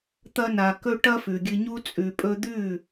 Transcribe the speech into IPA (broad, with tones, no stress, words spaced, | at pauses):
t̪ɐ˧na˨ kɵ˧ ʈɐ˦fʉ˨ɡʲɨ˧ɲu˦ t͡sʼʉ˨pʼɵ˧d̪ʉ˦˨